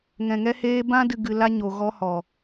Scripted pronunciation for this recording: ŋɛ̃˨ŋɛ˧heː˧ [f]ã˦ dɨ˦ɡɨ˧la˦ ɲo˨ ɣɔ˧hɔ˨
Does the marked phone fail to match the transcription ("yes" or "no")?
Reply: yes